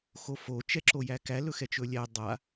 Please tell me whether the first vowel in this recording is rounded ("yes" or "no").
yes